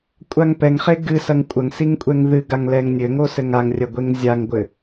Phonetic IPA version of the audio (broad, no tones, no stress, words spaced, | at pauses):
kʷʼaŋpɛŋχe ɡɨsɐŋ kʷʼɐŋsiŋ kʷʼɛŋðɨɡaŋ lɛŋnʲɘŋo sɘŋaŋrʲɐ ɡʷeŋzʲaŋɡʷɘ